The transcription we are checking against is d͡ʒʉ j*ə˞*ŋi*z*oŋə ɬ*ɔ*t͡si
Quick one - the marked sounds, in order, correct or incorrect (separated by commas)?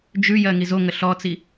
incorrect, correct, correct